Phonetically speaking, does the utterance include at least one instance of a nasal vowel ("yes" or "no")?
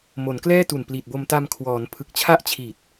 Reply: no